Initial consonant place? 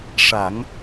retroflex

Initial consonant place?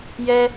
palatal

